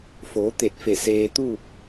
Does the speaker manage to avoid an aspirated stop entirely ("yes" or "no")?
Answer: yes